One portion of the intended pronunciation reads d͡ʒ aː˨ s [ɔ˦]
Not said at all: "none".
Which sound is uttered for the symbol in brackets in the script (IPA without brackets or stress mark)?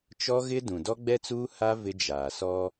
ɔ˦